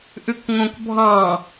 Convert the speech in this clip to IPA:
ʔʉkŋõkbʱɑ̃

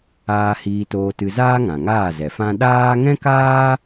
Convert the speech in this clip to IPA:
aː˧ hiː˧toː˧tɨ˧zaː˦ ŋã˨ŋaː˦˨zɛ˨fã˦ ɗaː˦ ŋɛ̃˦kaː˦

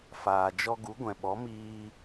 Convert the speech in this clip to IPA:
faː˨d͡ʒɔ˧ɡu˨˦ ɡʷɛ̃˨ɓɔ˨˦miː˧

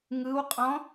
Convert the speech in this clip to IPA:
ŋɯwqʼɔ̃

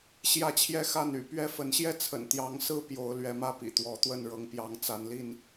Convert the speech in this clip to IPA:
ɕjä˥˨t͡ɕʰjɛ˥˨xa˥˨n y̰˨˩pɥɛ˥˨ fə˨˦nɕjɛ˥˨t͡sʰə̰˨˩n t̪jɑ˨˦ŋsɹ̩˦ pjo˨˦ʊ̯lɥɛ˨˦mä˥˨ pḭ˨˩t̪wɔ˨˦t̪wə˥˨n ɻɤ˨˦ŋpjɑ˨˦ŋ t͡sa˨˦nli˥˨n

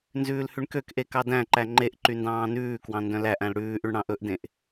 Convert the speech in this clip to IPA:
nzʉːlhʉɳkøkʔe kɑdæ̃ǃæ ŋ͡ǃeʔ ǃyndɑ̃ːnʉːkwɑ̃ ndœ̃læʔæ̃l ɽʉːʔyɳ ɽɑ̃ʔɵʔdẽʔ

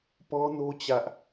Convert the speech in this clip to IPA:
pɔ˦no˦ t͡ɕä˦ʔ

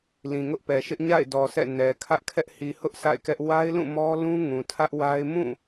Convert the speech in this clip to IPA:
lĩ˨ŋʊ˦ʔpɛ˨ʃɪ˦ʔ ɲa̰˦˨ɪ̯dɔ˨ sʰɛ̰˦˨ nɛ˨ kʰä˦ʔkʰɛ˦ʔ hi˨hʊ˦ʔ sʰa̰˦˨ɪ̯kɛ˦ʔ wa˦ɪ̯lũ˦˨ mɔ˦lũ˦ ŋũ˨tʰä˦ʔwa˦ɪ̯ mũ˦˨

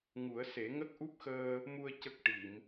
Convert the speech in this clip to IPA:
ŋu˨˩˦ə̯se˨˩˦ ŋə˦˥k̚ʔu˦˥p̚xəː˧ | mu˧ə̯ cə˦˥k̚ ʈi˨˩˨m

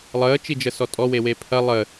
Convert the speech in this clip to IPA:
lˠəːt͡ʃid͡ʒəsɔ tʼɔwewe pʰɐ lˠə

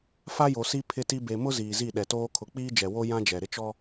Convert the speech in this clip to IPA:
fa˦jo˨si˦ pʰɪ˦ti˦ be˨mʊ˦ ziː˨zi˦˨ɗɛ˨toː˦ kʰʊ˨˦k͡piː˦d͡ʒɛ˨wo˦ jã˦d͡ʒɛ˨ ɾɪ˦t͡ʃɔ˦

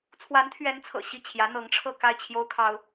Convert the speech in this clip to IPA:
t͡sʰwa˧˥nt̪ʰɥɛ˧˥nt͡sʰɤ̰˨˩ ɕi˥˩ t͡ɕʰjä˧˥n̪ɤ˧˥ŋʈ͡ʂʰɤ˥˧ ka˥˩ɪ̯t͡ɕʰjo˥ʊ̯kʰɑ˥ʊ̯

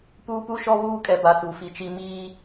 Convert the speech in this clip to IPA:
puː˦pu˦ʃɔ˦ βuː˦kʼɛ˨ba˨ tu˨fi˨t͡ʃi˦ miː˦

